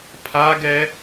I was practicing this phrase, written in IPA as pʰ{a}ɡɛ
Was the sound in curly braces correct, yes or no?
yes